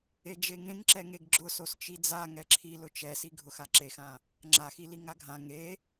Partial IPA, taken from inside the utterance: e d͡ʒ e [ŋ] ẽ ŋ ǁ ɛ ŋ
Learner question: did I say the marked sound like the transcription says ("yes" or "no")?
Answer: yes